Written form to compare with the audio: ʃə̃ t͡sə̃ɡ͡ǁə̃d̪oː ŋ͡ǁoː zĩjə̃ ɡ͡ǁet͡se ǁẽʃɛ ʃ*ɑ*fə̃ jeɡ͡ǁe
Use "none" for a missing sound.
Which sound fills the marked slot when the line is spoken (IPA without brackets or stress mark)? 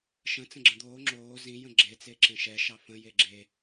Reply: ɑ